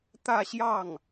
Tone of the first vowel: falling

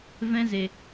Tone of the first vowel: high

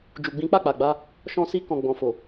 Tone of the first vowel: low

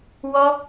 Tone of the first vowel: high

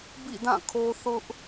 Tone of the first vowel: falling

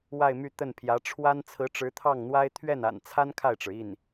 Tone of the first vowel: falling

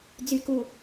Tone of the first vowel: low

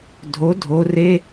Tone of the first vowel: rising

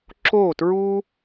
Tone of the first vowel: falling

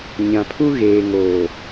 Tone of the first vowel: low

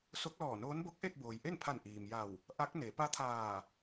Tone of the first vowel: rising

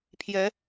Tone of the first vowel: rising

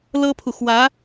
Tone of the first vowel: high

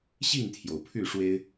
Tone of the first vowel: falling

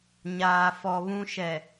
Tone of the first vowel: low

